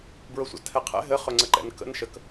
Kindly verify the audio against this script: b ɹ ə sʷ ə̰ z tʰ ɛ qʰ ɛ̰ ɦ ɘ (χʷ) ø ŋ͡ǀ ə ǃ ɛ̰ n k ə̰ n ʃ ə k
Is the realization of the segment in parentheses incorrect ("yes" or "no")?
yes